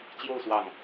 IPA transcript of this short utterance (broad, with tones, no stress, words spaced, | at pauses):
t͡ɕjo˥˧ʊ̯ swɑ˥˩ŋ